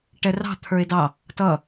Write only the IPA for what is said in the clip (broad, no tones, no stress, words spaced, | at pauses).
ʈɛrɑ̤ t̪ʰə˞e̯dɑ | tʌ